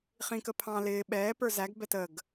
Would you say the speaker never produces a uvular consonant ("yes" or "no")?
no